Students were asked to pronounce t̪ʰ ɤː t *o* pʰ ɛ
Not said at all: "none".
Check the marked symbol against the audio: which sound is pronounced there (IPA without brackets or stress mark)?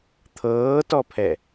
ɔ